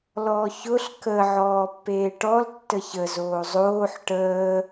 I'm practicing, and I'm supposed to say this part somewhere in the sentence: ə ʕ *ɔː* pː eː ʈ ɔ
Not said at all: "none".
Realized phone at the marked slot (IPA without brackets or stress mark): ɔː